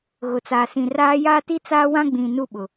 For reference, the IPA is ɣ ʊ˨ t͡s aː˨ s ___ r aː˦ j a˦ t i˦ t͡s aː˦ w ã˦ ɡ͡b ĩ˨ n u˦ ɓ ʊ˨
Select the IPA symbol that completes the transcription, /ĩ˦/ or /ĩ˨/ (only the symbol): ĩ˨